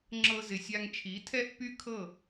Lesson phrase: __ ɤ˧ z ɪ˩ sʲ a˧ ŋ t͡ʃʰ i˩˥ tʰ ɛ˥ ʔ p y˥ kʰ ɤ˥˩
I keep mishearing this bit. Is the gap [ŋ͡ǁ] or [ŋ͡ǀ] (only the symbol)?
ŋ͡ǁ